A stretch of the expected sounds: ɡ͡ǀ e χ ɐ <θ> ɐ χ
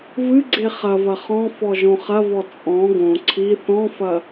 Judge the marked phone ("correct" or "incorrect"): incorrect